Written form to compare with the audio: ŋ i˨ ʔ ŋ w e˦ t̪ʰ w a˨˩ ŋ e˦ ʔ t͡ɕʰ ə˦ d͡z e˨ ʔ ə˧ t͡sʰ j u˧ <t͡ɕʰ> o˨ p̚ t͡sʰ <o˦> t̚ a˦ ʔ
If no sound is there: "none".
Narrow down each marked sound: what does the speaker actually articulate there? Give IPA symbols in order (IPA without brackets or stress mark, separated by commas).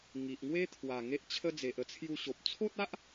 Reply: ɕ, o˦